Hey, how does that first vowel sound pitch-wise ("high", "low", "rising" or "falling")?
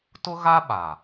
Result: high